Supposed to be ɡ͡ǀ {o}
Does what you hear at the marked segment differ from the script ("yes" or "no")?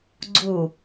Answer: yes